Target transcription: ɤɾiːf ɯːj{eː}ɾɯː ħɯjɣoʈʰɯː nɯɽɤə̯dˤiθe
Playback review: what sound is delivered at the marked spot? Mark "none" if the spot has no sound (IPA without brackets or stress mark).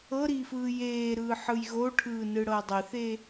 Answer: eː